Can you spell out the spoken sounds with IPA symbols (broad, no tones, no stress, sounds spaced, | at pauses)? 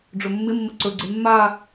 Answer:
ɖ͡ʐ ɵ mː ɪ mː ə ǀ ɵ ɡ͡ǀ e mː a